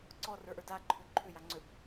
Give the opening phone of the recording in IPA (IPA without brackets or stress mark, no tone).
ǀ